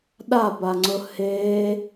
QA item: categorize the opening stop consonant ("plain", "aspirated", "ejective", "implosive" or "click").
implosive